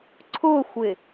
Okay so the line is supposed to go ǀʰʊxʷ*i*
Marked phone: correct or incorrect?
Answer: incorrect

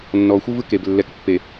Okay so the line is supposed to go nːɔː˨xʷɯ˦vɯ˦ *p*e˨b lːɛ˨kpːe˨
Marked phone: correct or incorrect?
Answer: incorrect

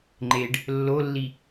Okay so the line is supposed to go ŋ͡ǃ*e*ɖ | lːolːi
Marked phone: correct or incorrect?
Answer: correct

